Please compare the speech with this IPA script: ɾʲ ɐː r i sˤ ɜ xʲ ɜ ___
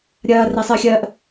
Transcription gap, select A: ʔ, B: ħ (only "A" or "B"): A